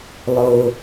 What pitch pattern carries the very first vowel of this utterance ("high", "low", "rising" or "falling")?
low